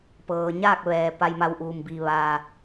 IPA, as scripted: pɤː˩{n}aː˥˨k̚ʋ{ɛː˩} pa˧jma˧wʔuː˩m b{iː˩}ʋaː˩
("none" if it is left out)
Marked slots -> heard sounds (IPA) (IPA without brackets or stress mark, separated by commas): ɲ, ɛː˩, iː˩